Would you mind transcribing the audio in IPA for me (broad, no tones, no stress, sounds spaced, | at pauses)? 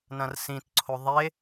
n ɐ̃ r s ĩ t ǀʰ o ðˤ e